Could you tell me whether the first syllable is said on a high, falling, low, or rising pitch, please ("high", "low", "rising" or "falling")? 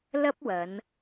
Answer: high